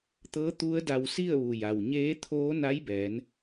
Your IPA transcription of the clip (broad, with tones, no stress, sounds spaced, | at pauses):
t̪ ɤː˧˥ t̪ u˧˥ ə̯ d a˧ w s i˥˨ ə̯ ʋ u˩ j a˩ w ɲ eː˧˥ t̪ʰ oː˧˥ n a˧˥ j b ɛː˩˧ n